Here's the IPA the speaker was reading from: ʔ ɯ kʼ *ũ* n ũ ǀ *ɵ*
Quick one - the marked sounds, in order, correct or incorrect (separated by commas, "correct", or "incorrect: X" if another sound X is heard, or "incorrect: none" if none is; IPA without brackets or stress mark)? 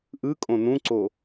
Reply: incorrect: õ, incorrect: o